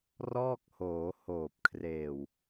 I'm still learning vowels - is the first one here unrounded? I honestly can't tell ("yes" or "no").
no